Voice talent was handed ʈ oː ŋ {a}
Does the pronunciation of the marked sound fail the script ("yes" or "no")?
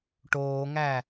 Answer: yes